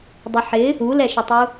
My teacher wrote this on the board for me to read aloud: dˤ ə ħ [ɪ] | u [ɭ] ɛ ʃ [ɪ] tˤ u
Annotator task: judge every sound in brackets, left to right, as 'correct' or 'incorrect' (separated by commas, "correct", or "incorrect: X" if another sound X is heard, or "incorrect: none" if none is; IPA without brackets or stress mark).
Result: correct, incorrect: l, incorrect: ə